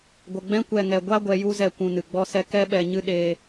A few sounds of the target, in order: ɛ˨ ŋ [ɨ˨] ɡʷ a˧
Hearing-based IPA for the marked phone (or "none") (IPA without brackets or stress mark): ɛ˨